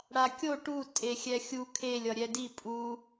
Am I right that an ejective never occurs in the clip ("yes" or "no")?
no